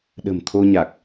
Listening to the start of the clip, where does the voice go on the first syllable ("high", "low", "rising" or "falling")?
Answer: low